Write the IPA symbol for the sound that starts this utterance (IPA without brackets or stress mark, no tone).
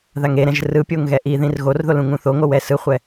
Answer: ð